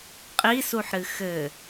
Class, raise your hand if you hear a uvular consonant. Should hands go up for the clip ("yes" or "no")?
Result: yes